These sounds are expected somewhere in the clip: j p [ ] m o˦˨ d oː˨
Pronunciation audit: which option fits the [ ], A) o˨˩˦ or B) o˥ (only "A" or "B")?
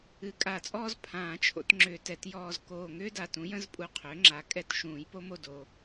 B